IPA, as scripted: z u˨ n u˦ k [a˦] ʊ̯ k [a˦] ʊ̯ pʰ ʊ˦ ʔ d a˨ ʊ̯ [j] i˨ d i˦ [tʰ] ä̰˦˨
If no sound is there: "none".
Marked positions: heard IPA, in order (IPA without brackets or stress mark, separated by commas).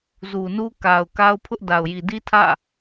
a˨, a˦, j, tʰ